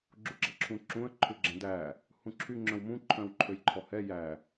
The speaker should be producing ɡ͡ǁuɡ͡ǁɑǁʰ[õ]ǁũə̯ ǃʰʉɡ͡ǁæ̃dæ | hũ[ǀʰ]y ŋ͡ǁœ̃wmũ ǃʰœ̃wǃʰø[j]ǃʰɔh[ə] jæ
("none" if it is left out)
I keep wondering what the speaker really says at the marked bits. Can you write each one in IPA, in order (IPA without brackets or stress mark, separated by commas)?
ũ, ǁʰ, j, ɛ